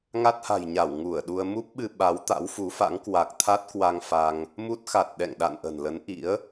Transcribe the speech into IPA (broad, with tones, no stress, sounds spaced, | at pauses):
ŋ a˦˥ t̚ h a̤˨˩ j ɲ a˧˩ w ŋ u˧˩ ə̯ ɗ u˧ ə̯ m u˦˥ p̚ ɓ ɨ˧ ɓ a˨˦ w t̪ a̰˧˥ w f u˨˦ f a̰˧˥ ŋ k w a˨˩ k̚ t̪ʰ a˦˥ t̚ k w a˧ ŋ f a˧ ŋ | m u˦˥ t̚ x a˨˩ t̚ ɗ ɛ̰˧˨ ŋ ɗ a̰˧˨ n ʔ ə̤˨˩ n l ə˨˦ n ʔ ḭ˧˥ ə̯